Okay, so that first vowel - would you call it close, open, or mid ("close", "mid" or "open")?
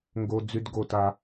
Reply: mid